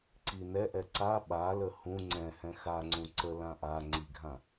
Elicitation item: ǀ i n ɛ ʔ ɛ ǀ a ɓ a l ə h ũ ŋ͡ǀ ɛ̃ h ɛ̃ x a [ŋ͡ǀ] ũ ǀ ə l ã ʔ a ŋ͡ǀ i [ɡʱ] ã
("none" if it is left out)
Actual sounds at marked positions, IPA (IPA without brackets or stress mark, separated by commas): ŋ͡ǀ, ɡʱ